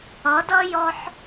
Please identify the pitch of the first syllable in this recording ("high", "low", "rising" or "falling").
rising